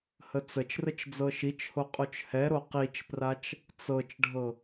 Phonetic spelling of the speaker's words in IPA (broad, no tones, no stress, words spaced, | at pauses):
hət͡sət͡ʃrət͡ʃ d͡zɤʃit͡ʃho qʼot͡ʃhɛɾo qit͡ʃprat͡ʃ | t͡sɤt͡ʃɖʱɤ